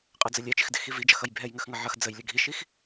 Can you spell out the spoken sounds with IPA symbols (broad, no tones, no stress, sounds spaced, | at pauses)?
qʼ ə d͡z ə lʲ ɛ t͡ʃ ɪ x d ɪ x i v i d͡ʒ ʌ x ʌ j bʱ ɛ j ŋ ə x ŋ ʌ ʕ ʌ x d͡z ə j lʲ ə ɡʱ i ʃ i x